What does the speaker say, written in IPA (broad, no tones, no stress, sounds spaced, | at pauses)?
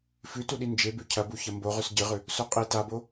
f ʉ t u ɗ i n d͡ʒ e b ʉ cʰ ɐ b u ç ɐ m b o ʁ ʉ s ɟ ɨ ʁ ʉ | s o qʼ i t a b o